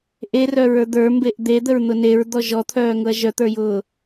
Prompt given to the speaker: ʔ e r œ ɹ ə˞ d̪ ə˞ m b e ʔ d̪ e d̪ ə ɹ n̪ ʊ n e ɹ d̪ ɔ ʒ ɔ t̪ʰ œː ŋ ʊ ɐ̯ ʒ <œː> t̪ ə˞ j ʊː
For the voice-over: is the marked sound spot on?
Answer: no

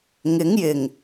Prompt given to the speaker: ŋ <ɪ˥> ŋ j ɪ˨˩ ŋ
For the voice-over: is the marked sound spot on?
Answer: no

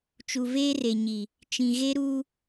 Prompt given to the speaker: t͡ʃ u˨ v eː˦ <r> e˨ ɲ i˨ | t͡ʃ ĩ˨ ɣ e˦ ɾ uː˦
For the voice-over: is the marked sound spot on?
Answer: yes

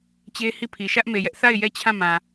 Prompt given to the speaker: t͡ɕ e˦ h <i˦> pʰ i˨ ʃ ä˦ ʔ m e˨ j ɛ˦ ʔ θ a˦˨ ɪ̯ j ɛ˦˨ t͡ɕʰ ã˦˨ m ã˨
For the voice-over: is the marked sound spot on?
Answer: no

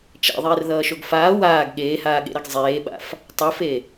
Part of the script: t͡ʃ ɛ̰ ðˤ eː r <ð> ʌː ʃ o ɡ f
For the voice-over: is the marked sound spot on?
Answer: yes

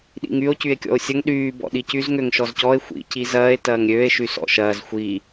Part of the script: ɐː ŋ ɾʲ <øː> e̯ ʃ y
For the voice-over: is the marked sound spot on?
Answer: yes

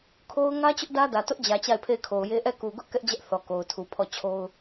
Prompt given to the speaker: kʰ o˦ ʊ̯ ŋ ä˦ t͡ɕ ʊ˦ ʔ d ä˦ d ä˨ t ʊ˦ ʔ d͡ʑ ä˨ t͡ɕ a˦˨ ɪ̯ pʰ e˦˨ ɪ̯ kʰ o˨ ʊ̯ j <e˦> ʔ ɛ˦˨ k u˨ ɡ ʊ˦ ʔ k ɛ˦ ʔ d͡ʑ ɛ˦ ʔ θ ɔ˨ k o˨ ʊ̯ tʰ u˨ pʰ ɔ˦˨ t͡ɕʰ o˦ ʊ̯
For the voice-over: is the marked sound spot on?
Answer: yes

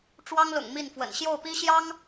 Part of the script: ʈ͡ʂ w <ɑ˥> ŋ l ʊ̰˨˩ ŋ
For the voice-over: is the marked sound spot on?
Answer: yes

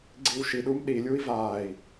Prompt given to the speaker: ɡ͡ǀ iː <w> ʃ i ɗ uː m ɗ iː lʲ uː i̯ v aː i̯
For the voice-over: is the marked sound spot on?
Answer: yes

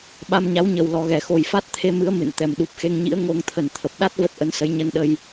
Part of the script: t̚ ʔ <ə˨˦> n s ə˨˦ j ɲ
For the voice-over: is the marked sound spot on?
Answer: yes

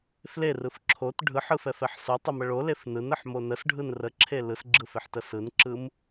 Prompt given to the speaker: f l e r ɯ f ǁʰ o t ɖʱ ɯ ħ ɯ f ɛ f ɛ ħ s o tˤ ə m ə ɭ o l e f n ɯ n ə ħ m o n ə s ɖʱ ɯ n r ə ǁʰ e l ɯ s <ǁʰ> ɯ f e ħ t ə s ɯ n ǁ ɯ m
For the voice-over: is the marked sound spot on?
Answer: no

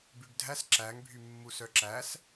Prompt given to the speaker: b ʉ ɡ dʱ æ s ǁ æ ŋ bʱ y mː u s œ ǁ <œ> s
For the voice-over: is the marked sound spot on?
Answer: no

